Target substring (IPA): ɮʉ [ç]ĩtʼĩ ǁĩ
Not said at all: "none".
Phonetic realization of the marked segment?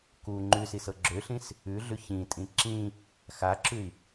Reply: ç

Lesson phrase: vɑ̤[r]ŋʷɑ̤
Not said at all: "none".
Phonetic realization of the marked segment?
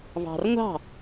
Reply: r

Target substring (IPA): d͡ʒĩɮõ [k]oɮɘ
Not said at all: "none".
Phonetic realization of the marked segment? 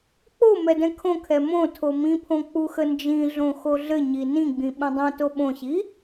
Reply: x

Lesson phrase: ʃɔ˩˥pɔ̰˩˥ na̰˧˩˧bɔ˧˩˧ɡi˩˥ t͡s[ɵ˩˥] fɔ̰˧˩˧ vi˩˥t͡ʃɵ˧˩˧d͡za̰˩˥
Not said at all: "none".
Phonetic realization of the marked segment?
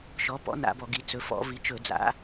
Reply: ɵ˩˥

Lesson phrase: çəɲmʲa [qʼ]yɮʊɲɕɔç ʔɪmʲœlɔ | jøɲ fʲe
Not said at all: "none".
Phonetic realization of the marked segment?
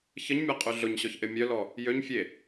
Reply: qʼ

